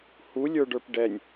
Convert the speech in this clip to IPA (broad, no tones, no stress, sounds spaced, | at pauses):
h u lʲ ə˞ ɖ ə˞ p ɖ ɛ nʲ